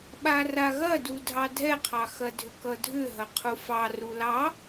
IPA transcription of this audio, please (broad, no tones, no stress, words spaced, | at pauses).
ɓaraɣɐdu dʱɑdʱɛqʰɑ xɐdʱʏkʌdʱʏ ɦɐqʰufɑ rulɑ